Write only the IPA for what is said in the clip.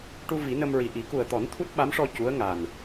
ʈ u˧ v i˨˩˦ n ə˧ m ɹ i˨˩ ʔ i˨˩˦ k u˨˩ ə̯ t̪ ɔ˨˩˦ n t̪ʰ u˦˥ t̚ ɓ a˧˥ m ʂ ɔ˧ c u˧˥ ə̯ ŋ a˨˩ n

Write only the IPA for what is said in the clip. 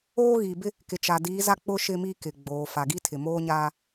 oː˦ ɣ i˨ b ɪ˦ | k ɪ˨ t͡ʃ a˨ d iː˨˦ z a˦ k͡p ʊ˦ ʃ ɪ˦ m i˦ k ɪ˨ ɡ͡b oː˨ f a˨ ɡ i˦ tʰ ɪ˨ m oː˦ ɲ aː˦

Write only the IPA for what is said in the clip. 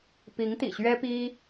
p i˧˥ ŋ t̪ ḭ˨˩ ɕ ɥ ɛ˥ p i˥

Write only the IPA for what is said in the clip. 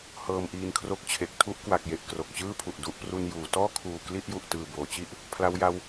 h ɤː˧ m ʔ iː˧ n kʰ r o˦˥ k̚ t͡ɕʰ e˨˩ k̚ tʰ u˦˥ ʔ k w a˨˩ k̚ j e˨˩ ʔ k r o˨˩ k̚ t͡ɕ ɯː˥˩ pʰ u˨˩ ʔ d u˦˥ ʔ p r u˧ n j uː˩˦ t ɔː˥˩ kʰ uː˨˩ k l i˥˩ ʔ j u˨˩ ʔ t ɯː˨˩ b oː˩˦ t͡ɕ i˥˩ ʔ | pʰ l a˦˥ w j a˦˥ w

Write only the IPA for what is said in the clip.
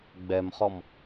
ɡ͡b ɛ m χ ɔ m

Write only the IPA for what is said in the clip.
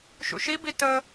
ʃ ṵ ʃ i b i t ə

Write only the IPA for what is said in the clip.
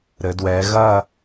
ɾ ɘ˩˧ d w ɛː˩˧ ɣ ɐ˦˨

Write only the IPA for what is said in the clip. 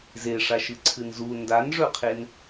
z e ʂ a ʃ ɨ ǀʰ ɨ n z u n d a n ʐ ɵ qʰ e n

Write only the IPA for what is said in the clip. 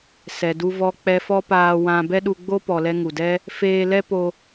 s ɛ˨ d u˧ v ɔ˧ k͡p ɛ˧ f ɔ˦ p aː˧ w ã˧ b ɛ˦ ɗ u˧ ɡ͡b o˦ p ɔ˨ l ɛ˧ ŋ u˨ d ɛ˦ | f eː˧ l ɛ˦ p o˧

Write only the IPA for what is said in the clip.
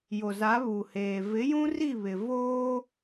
j o˨ z a˨˦ β u˨ h eː˨ v ɪ˨˦ j ũ˦ r i˦˨ β ɪ˨ v oː˦

